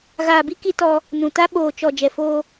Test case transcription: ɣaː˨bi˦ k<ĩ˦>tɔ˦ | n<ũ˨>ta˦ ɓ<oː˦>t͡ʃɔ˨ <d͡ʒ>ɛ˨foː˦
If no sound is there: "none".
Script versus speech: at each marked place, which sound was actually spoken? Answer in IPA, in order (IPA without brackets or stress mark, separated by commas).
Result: i˦, ũ˨, oː˨, d͡ʒ